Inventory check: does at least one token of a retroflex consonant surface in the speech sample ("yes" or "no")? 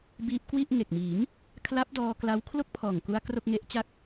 no